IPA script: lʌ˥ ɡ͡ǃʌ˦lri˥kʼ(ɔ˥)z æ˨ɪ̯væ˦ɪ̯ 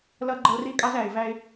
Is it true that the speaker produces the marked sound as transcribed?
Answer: no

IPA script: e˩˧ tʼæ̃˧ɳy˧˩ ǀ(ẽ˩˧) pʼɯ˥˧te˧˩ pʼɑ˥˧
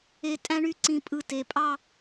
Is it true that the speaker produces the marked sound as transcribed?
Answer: no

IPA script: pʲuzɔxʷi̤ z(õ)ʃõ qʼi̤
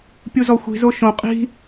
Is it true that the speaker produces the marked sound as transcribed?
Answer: no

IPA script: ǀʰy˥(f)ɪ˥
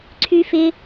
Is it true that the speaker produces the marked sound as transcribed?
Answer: yes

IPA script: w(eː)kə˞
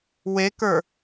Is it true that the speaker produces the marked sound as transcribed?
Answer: no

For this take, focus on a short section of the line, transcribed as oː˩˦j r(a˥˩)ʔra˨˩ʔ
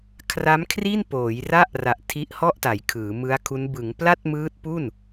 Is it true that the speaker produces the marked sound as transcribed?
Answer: yes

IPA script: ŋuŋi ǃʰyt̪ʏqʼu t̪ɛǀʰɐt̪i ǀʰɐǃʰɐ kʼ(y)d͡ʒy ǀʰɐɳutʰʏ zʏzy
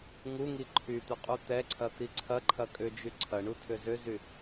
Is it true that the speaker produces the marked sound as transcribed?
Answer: no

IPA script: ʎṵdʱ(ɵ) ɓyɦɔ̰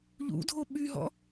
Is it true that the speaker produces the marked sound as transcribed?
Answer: no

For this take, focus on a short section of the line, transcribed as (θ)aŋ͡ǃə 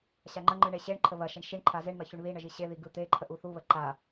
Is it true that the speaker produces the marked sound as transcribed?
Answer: no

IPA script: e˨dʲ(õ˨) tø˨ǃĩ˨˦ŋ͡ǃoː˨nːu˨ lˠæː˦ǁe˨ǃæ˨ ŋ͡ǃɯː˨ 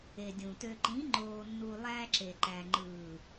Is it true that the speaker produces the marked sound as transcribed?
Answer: no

